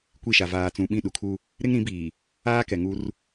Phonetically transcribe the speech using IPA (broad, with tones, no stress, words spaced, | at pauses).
kʷi˦˨ʃa˨ vaː˨t͡sũ˨ɓĩ˦˨ ɗu˨kʰu˦ | ɾɪ˦ŋɾĩ˨˦biː˨ | aː˦kɛ˨ŋu˦r